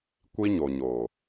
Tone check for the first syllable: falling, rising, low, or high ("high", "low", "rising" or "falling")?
high